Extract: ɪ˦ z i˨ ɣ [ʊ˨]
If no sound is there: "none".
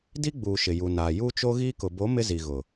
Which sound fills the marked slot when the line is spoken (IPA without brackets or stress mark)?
ʊ˨